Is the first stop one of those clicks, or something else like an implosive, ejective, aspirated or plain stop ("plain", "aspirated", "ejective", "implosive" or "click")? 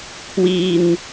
aspirated